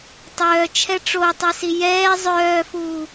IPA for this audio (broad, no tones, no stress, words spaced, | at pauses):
tˤœːt͡ʃʰɛ ʈ͡ʂotˤɛsi jɛː zˤœːfuː